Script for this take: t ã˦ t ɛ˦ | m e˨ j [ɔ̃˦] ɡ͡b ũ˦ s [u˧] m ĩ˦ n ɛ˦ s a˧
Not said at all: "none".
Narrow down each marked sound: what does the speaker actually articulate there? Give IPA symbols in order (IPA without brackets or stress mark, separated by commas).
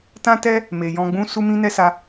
ɔ̃˧, u˧